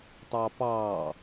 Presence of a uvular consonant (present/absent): absent